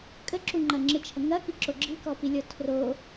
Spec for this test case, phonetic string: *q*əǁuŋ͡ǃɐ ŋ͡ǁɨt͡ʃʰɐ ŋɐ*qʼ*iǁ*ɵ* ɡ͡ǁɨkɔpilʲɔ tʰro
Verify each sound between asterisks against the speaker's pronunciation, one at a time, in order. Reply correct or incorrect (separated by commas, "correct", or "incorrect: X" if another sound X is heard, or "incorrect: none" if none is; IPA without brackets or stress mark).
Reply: incorrect: kʼ, incorrect: k, incorrect: o